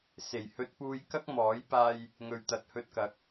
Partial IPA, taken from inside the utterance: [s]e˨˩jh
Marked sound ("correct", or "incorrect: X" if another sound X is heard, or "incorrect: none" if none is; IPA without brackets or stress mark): correct